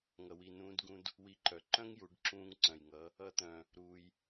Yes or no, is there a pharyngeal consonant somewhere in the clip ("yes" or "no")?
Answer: no